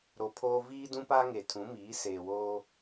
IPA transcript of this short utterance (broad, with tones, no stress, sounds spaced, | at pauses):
ɾ o˨ pʰ oː˦ v iː˦ d ũ˦ p a˦ ŋ e˨ tʰ ũ˨˦ m iː˨˦ s eː˨ w oː˦